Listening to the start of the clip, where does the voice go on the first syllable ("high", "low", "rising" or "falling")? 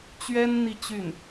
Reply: high